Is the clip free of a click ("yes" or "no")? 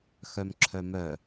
no